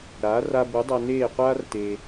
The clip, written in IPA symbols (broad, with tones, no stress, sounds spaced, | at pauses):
ɾ aː˩˥ r a˧ b u˩˥ dˤ a˧ n eː˥˩ qʷ aː˥ r t e˧